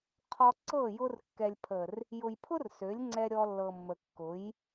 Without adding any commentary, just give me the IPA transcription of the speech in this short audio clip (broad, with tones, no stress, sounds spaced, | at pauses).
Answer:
qʰ ɔ˧ ǀ ɤ˦˨ j ʊ˧ r kː ɛ˨ lʲ pʰ ə˨ r | j ʊ˨ j pʰ ʊ˦ r s ø˨˦ lʲ ŋ͡ǀ ɛ˧ ɾʲ ɔ˧ lː ɤ˨ mː ə˨ kː ʊ˨˦ j